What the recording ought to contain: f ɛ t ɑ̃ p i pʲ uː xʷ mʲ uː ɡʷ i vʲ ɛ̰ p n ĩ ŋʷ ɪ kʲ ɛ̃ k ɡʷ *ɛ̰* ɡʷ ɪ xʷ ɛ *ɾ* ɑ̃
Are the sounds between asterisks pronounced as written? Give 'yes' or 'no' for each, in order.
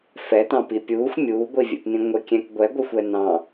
no, no

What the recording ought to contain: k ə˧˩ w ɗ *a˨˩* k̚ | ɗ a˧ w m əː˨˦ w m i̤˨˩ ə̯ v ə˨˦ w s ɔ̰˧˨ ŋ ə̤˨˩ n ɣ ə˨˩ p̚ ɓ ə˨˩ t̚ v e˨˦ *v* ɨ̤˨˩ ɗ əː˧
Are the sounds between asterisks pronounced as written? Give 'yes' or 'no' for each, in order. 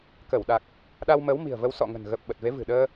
yes, yes

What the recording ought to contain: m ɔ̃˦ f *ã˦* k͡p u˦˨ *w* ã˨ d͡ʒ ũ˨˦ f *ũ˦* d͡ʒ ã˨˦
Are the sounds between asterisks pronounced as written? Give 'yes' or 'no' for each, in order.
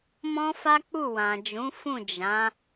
no, yes, no

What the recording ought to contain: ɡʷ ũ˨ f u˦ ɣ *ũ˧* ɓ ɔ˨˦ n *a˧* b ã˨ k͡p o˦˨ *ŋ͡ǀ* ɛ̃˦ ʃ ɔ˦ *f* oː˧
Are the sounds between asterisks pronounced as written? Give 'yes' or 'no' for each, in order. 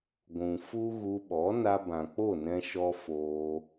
no, yes, no, yes

